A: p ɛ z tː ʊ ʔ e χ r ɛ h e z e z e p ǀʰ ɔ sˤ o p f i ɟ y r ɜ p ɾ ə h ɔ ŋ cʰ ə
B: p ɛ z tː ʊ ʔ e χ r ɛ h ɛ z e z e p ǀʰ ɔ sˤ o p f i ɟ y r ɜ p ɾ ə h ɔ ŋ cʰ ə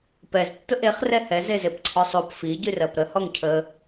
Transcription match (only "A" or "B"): B